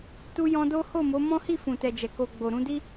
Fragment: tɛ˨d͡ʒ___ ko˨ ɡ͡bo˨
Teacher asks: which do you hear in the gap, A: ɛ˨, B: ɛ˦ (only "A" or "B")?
A